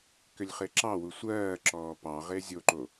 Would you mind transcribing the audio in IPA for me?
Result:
kʏlʲχeǁɑwu sʷɜːǁɔː pɑ ʁezʲoǃo

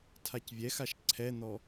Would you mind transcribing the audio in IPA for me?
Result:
tʰacvʲɛxaʃ ǀʰɛn̪ɔ

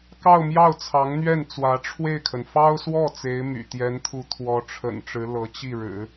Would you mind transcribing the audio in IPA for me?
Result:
kɑ˥˧ʊ̯mjɑ˥˩ʊ̯t͡sʰɑ˧˥ŋn̪ɥɛ˥˩n t͡swä˧˥ʈ͡ʂʰwe˥˩ɪ̯kʰə˩n fɑ˥ʊ̯swɔ˥˩ t͡se˧˥ɪ̯my̰˨˩ t̪jɛ˧˥nt̪ʰu˧˥ t̪ʰwɔ˧˥ʈ͡ʂʰə̰˨˩nʈ͡ʂɻ̩˧˥ lɤ˧˥t͡ɕi˥˩ɻɻ̩˨˩˦

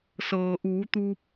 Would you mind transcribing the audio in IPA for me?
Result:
sɤː˩ʔuː˩˧t̪uː˧p̚

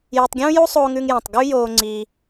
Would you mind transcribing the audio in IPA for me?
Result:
je˧tˤɡʲũː˥ju˥ sˤoː˥ŋʉ˥ŋjã˧tˤ ɡʉ˥joː˧ ŋ͡ǀi˧

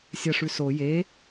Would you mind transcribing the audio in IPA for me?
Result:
sʲɐʂʉ so je

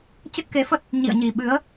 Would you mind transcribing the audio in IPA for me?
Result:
t͡ɕə˦˥t̚ke˨˦fə˦˥t̚ | ɲḭ˧˨ə̯ɲi˨˩ɓɨ˨˦ə̯

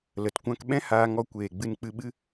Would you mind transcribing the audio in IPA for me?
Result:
lə˨t kʷã˧kɓɛ̃˦ haː˧ŋɔ˧kʷeː˨ ɡ͡bɨ˧nk͡pɨ˧ɓɨ˦

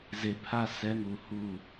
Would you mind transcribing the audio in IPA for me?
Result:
ze˨pʰa˦˨ sɛ˦ŋu˨ hu˦˨

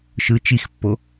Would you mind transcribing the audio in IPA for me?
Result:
ʃɯ t͡ʃixpːo

